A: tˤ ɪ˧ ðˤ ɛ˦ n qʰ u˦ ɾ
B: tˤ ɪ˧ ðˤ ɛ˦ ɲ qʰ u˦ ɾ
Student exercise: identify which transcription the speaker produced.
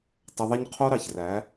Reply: B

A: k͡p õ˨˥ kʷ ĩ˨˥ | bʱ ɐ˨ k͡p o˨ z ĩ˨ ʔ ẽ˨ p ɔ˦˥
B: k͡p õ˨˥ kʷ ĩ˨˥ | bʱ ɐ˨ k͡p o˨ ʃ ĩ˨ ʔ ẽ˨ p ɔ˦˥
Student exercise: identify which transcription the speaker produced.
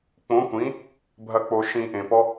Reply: B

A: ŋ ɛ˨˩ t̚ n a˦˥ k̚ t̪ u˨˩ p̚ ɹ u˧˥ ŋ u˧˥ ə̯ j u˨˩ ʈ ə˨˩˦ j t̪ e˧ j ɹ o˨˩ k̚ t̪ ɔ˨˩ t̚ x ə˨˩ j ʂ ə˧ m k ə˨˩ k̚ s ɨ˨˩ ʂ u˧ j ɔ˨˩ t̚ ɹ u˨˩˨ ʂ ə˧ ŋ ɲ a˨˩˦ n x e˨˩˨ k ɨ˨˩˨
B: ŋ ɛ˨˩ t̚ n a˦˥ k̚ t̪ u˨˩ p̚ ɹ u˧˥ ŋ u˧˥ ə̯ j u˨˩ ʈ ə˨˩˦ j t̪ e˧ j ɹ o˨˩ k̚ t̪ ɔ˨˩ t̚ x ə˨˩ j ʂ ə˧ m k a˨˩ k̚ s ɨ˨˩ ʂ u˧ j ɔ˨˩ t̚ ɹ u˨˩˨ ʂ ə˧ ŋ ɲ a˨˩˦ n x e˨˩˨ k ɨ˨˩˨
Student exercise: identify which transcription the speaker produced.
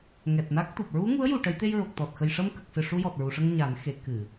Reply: A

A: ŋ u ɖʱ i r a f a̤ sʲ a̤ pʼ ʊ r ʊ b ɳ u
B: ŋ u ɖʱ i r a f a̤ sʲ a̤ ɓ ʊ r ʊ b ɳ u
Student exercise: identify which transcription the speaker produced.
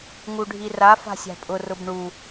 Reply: A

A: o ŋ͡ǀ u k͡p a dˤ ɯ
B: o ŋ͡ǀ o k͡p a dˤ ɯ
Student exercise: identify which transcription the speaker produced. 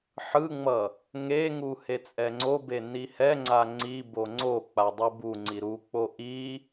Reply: B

